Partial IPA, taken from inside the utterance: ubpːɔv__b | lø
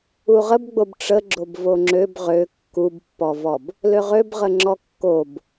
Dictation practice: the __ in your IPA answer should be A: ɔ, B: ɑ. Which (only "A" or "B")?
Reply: A